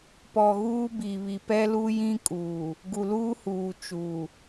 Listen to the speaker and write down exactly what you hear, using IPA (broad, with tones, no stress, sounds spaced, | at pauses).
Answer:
p ɔ˨ ɣ uː˦ b iː˨ β i˨ p ɛ˦ l uː˦ j ĩ˦ kʼ uː˨ | ɡ u˨ l uː˦ h uː˨ t͡ʃ u˨